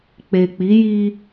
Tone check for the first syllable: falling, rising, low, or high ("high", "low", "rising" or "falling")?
low